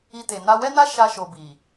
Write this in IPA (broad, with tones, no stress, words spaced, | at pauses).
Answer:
i˧te˨ na˧wɛ˦na˦ ʃa˧ʃo˨bi˨